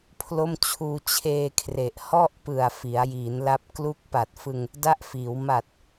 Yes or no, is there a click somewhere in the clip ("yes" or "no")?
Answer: no